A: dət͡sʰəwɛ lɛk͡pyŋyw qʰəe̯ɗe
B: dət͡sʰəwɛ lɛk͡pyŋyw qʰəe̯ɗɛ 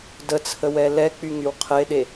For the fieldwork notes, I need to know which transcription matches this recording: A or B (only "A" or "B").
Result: A